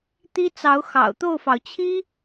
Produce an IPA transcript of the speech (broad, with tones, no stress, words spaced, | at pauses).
t̪i˥t͡sɑ˧˥ʊ̯xɑ̰˨˩ʊ̯ t̪o˥˩ʊ̯fɑ˩ʊ̯ t͡ɕʰi˥